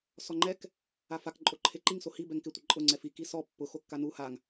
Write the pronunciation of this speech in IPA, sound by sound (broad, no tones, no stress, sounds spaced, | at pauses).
s ɔ ŋ͡ǃ ɛ k | a f a k ǃʼ o ǃʰ e ǃ i ŋ s o h i b ɛ ŋ k ɪ tʷ ɪ ǃʼ ʊ ŋ͡ǀ ɛ f i k i s ɔ pː ʊ x o kː a n u h a ŋ